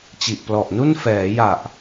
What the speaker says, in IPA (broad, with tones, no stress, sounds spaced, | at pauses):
t͡ɕ i˨˩ ʔ p l ɔ˨˩ ʔ n u˥˩ n f ɛː˩˦ j a˨˩ ʔ